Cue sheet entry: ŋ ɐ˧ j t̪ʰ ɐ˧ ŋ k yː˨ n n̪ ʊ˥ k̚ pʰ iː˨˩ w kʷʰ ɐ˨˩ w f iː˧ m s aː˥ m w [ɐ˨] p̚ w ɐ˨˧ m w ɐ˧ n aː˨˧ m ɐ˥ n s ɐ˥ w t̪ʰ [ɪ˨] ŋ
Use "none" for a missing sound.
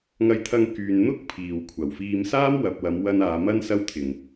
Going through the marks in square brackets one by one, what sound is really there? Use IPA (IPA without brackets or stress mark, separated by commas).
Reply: ɐ˨, ɪ˨˩